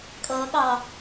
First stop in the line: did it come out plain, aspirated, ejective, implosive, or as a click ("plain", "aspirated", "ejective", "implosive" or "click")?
ejective